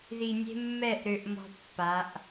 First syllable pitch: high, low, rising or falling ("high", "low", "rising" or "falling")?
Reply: low